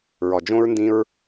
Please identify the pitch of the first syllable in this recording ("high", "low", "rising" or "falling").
low